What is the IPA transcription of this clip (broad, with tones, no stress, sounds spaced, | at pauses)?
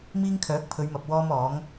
m iː˥ ŋ kʰ œː˨˥ k̚ pʰ ɵ˨˧ ɥ m ɐ˨ p̚ w ɔː˥ m ɔː˨˥ ŋ